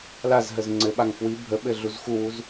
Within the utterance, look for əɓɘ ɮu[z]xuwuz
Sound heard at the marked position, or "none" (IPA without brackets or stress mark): z